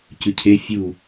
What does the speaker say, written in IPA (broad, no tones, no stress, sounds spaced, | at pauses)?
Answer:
c ʉ cʰ e fʲ u